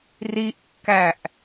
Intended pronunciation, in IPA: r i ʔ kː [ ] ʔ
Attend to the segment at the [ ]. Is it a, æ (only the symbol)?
æ